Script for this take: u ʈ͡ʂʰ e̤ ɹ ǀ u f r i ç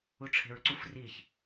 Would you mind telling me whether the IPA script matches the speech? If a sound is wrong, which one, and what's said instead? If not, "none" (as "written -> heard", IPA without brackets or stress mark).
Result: none